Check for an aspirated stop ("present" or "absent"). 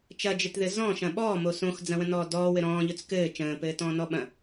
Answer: absent